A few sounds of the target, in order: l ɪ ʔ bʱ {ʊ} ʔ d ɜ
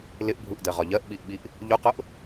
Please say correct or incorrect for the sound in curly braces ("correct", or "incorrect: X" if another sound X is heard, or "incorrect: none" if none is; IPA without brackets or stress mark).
incorrect: u